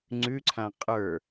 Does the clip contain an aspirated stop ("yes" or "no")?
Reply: yes